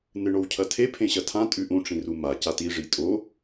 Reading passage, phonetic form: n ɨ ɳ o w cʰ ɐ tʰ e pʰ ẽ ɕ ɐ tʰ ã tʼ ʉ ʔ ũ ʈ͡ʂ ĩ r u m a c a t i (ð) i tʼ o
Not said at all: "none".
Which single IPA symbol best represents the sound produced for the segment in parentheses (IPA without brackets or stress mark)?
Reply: ʐ